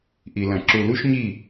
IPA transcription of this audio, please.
ʔi˨lɐ̃˨ ǁu˨lu˦ʃɲi˦˨

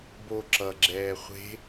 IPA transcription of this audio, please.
bo ǁʌɡ͡ǁɛː χʷe̤

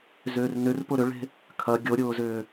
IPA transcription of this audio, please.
zʏːrnʏr pʊɾʏɭe̤ | kʰɐ ɡʲoɾʲʊːzʏː

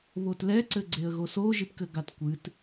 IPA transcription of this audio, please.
βotlɛǀɘɡ͡ǀeə̯ ɣosoʒipkɘ ɡatkʷɨt

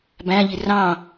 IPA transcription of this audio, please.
bæ̃ʎi rɑ̃

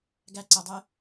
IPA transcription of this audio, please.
ɡæ ǀədˤe

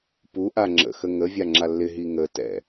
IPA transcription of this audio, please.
puʔa ŋ͡ǁə̰xə ŋə vʲaŋ͡ǁalːɪɦi ŋətɛ̰

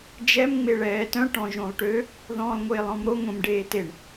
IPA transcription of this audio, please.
d͡ʒɛm ŋ͡meɭɛːtœ̃ ʈɔ̃ʒõlˠʈø | ðɔ̃ːlˠŋʷeːlˠɔ̃mɾo ŋʷẽmɖeːteɳ

